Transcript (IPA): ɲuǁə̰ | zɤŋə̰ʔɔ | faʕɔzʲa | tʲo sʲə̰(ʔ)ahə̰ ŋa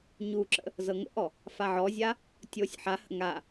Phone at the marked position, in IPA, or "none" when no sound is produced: ħ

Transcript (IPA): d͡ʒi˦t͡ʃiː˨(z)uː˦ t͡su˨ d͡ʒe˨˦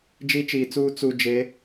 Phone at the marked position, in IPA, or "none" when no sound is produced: t͡s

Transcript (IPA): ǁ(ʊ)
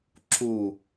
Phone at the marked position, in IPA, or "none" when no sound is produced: u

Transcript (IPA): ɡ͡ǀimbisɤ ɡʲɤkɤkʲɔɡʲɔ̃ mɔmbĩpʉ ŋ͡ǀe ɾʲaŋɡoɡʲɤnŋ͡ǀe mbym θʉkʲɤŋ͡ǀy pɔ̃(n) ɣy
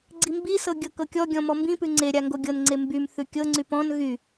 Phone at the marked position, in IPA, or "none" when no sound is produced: n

